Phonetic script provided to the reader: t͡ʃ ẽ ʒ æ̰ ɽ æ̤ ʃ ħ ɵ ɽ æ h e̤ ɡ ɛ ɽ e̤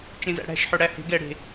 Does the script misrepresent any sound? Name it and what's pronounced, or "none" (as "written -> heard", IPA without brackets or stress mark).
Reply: ʒ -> z